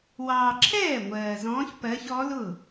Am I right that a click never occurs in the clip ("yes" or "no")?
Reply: no